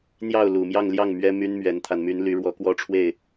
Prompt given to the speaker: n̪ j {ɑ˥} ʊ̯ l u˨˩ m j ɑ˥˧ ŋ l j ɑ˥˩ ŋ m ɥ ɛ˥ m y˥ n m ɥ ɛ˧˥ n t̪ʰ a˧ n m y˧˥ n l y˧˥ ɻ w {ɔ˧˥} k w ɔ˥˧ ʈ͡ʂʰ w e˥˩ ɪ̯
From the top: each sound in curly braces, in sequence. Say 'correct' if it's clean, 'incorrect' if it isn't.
incorrect: ɑ˥˩, correct

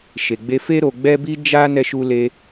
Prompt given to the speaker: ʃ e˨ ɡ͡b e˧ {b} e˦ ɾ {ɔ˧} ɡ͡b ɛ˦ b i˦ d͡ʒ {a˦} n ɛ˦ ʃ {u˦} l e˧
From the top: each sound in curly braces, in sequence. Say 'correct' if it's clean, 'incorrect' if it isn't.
incorrect: f, incorrect: o˧, correct, correct

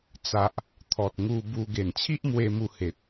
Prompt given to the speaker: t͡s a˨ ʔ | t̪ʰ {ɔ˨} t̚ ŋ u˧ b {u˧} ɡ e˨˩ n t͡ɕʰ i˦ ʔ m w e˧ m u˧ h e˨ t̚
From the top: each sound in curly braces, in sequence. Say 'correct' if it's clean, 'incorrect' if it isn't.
correct, correct

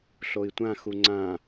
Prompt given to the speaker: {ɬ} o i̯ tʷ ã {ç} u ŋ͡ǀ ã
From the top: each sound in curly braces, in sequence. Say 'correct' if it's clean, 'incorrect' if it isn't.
correct, incorrect: x

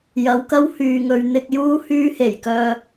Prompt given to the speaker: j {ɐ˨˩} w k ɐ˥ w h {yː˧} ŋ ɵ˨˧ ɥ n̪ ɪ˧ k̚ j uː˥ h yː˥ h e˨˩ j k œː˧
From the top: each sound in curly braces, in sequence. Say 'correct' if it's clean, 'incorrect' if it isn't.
incorrect: ɐ˨˥, incorrect: yː˨

